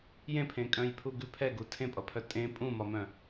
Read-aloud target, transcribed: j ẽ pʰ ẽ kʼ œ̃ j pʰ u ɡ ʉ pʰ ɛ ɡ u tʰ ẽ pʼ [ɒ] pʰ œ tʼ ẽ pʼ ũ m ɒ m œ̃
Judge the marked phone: incorrect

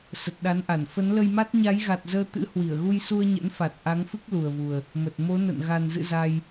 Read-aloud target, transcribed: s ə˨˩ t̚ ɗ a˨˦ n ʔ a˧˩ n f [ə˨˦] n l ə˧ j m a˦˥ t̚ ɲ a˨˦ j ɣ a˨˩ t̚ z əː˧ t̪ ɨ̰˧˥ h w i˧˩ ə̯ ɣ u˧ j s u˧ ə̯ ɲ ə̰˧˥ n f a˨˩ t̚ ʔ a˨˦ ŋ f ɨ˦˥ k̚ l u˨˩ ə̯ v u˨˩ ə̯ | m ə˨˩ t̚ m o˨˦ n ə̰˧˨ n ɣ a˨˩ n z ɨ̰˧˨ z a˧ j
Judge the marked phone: correct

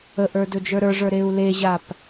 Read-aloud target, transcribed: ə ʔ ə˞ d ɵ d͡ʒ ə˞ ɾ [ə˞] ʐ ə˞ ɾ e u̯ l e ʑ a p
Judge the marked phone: correct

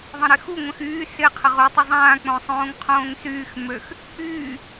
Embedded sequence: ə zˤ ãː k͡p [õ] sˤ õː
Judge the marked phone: correct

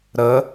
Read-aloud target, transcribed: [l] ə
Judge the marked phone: incorrect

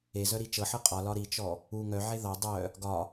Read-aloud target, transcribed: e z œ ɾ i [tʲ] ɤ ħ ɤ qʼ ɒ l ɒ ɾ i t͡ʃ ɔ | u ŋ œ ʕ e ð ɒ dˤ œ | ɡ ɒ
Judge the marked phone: incorrect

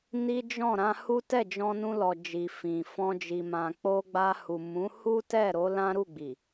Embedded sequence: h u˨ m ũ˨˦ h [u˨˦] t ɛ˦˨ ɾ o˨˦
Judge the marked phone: incorrect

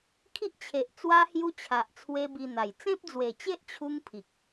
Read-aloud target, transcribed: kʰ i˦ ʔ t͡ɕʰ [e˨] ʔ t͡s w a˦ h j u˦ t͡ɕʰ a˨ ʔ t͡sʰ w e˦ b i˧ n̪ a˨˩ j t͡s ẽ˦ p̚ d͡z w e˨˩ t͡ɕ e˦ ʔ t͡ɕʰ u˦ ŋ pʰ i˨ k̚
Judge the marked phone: correct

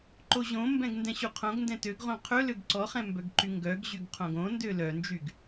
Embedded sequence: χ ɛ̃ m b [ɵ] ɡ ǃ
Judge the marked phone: incorrect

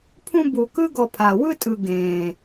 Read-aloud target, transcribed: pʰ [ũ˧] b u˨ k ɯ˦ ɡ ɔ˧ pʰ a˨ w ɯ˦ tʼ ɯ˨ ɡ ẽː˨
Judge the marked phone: incorrect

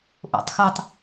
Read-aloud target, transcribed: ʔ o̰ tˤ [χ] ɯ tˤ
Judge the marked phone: incorrect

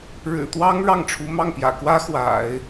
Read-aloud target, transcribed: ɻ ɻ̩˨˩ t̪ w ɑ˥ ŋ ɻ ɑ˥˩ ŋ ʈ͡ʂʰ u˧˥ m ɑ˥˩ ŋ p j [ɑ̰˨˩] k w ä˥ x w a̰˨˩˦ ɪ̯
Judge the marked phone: incorrect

